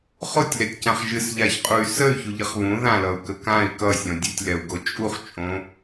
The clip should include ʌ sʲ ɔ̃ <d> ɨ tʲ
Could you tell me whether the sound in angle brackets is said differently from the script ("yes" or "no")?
yes